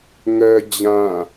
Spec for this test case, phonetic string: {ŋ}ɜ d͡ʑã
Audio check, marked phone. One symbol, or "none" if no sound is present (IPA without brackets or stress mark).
ŋ